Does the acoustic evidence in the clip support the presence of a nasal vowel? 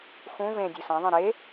yes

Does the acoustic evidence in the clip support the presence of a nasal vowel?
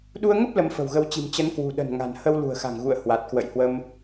no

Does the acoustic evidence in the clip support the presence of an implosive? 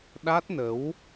yes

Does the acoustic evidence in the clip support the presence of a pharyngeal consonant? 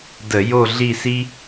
no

